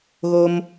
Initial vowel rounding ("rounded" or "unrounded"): rounded